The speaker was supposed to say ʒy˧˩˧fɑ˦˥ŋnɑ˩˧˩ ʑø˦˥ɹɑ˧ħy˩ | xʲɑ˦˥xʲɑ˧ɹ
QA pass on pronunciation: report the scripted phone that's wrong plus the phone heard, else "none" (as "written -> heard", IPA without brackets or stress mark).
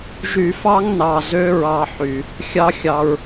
ʑ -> z